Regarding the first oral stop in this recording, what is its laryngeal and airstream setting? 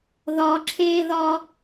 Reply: click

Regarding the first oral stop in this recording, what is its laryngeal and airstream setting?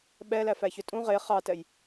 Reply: implosive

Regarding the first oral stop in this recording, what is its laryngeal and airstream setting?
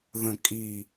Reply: ejective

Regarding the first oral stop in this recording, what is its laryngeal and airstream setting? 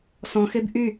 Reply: plain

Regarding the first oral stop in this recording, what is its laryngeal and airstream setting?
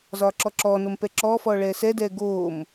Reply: click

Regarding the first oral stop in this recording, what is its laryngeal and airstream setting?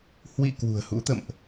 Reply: plain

